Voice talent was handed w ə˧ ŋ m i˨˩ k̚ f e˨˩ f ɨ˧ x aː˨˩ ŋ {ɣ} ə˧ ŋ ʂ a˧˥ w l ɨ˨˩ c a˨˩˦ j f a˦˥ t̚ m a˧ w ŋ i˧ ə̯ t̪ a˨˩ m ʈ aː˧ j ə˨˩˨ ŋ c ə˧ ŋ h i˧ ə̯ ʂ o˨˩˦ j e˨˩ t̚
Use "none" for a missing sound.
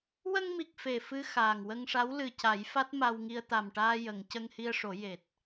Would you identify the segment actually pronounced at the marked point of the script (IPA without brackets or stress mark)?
w